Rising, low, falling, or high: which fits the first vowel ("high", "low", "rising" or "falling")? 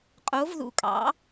rising